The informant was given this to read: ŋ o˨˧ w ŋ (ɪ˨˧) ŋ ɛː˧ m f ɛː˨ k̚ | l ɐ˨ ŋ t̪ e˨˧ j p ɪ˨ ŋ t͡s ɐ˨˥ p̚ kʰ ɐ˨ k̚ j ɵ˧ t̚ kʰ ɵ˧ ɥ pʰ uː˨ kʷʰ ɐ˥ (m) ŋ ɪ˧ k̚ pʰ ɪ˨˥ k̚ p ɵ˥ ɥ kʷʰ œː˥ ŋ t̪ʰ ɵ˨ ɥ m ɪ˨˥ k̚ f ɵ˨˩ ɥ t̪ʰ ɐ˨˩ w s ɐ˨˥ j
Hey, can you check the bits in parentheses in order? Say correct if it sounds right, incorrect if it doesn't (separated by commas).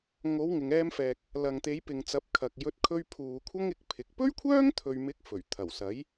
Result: incorrect, incorrect